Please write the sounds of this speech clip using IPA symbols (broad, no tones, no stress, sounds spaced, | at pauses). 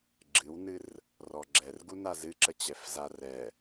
ɡ͡ǁ ɨ w n ɨ r | r ɔ ɡ͡ǁ ɛ r ɡ u n a z ɨ ǁ ə t͡ɕ ɛ f z a r ɛ